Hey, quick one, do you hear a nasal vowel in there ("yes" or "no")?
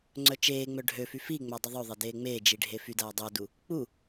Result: no